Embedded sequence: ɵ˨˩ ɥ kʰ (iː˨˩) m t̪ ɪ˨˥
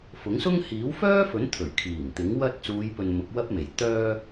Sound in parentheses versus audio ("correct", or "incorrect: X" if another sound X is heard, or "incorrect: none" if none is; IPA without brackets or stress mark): correct